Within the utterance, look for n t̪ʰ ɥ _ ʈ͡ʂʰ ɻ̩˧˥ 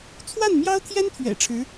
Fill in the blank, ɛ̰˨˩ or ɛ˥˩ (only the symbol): ɛ̰˨˩